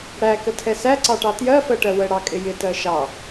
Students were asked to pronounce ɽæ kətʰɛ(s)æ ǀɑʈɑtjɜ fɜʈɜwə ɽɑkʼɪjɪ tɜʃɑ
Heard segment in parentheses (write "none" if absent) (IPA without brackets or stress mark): s